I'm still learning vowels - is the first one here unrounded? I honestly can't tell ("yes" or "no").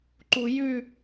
no